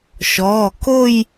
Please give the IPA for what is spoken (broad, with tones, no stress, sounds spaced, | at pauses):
ʃ ɔː˩˧˩ k o˥˧ j